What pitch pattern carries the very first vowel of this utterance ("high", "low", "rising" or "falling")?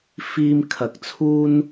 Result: high